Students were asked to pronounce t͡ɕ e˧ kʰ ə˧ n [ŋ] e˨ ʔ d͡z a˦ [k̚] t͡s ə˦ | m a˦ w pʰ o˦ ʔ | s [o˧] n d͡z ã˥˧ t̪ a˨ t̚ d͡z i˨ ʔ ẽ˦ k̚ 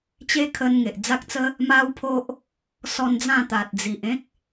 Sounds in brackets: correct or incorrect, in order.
correct, correct, incorrect: ɔ˧

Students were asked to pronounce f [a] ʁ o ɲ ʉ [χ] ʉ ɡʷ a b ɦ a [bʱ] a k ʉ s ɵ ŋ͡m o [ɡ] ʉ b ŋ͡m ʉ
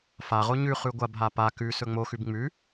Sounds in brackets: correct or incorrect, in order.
correct, correct, incorrect: p, incorrect: x

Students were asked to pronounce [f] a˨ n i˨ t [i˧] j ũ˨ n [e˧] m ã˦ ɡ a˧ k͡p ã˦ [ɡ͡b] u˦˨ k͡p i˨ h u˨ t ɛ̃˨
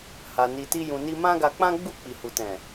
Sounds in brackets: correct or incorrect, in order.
incorrect: h, correct, incorrect: i˧, correct

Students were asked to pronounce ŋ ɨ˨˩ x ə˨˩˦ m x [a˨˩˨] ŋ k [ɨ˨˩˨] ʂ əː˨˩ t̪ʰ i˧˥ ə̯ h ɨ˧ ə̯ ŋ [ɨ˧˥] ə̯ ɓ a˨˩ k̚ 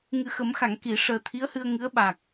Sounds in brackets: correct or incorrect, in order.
correct, incorrect: i˨˩˨, correct

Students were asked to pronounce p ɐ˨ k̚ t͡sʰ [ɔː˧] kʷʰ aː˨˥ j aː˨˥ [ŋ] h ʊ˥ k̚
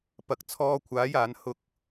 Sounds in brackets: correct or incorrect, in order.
correct, incorrect: n

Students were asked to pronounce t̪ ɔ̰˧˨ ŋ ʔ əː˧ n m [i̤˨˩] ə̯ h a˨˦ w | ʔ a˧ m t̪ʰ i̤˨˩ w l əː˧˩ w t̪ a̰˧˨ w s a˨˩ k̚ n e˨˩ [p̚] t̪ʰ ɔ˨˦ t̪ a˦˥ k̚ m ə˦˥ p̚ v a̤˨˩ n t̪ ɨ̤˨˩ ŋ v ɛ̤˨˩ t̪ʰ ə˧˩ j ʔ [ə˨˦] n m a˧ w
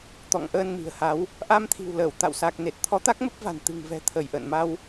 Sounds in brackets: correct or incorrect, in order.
correct, incorrect: t̚, incorrect: ə̰˧˨

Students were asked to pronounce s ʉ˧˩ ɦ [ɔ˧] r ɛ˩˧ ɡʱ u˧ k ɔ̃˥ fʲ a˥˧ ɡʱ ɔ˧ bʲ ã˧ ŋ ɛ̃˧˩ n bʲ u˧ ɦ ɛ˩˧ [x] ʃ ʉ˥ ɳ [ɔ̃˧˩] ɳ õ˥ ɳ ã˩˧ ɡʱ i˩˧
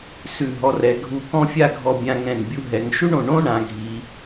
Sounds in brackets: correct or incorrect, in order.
correct, incorrect: ŋ, incorrect: õ˧˩

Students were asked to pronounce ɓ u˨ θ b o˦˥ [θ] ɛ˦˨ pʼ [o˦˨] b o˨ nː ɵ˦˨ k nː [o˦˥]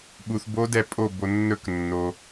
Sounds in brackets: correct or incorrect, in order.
incorrect: d, correct, incorrect: o˨

